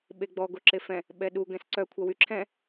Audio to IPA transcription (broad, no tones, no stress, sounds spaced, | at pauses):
ɓ e ɡ͡b ɔ ɡ o ǁ e f ɛ̃ | ɓ ɛ ɗ u ɡ ɛ̃ s ǀ œ kʷʰ a w y ǁʰ ɛ̃